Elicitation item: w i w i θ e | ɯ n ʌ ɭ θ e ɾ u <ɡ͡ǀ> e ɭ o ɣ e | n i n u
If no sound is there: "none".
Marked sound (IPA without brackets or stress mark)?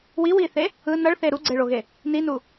ɡ͡ǀ